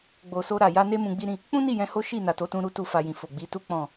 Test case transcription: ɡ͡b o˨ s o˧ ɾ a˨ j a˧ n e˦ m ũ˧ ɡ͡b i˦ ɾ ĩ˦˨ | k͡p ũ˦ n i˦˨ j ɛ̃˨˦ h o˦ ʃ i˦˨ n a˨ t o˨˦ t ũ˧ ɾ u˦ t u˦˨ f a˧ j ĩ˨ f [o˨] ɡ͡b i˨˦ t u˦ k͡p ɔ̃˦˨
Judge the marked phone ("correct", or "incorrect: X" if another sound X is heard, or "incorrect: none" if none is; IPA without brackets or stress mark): correct